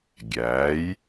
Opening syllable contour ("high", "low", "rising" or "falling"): rising